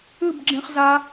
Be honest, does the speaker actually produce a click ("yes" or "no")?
yes